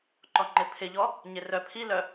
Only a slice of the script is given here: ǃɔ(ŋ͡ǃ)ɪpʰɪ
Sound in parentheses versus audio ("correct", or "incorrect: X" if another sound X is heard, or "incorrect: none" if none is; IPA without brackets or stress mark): correct